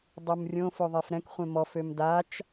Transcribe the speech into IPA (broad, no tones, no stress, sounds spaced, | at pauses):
dˤ u m rʲ õ f o ðˤ e f ɾ ɛ̃ k χʷ ẽ m ɔ f ø m d a t͡ʃ